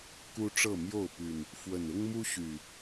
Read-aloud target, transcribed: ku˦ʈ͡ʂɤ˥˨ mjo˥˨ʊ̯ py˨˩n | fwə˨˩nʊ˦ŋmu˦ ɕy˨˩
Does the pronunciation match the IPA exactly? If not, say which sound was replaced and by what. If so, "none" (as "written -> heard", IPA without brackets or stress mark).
none